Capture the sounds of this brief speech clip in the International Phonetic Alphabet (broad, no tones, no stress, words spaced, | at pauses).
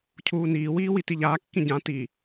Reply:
cʰuːniːwiː witiʎaːkːĩ ɟã ti